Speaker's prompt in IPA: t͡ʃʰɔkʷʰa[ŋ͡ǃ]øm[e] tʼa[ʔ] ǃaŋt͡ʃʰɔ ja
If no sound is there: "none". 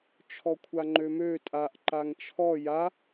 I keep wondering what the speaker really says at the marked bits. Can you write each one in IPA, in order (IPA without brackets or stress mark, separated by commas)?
ŋ͡ǃ, ø, ʔ